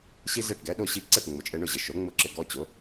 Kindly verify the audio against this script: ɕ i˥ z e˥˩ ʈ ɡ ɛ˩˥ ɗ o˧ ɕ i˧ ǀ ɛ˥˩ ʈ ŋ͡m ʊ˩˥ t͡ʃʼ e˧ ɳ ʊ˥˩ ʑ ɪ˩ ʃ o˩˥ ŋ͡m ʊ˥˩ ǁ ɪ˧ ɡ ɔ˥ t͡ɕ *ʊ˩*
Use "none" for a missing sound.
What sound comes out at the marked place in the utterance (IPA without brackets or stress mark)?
ʊ˩˥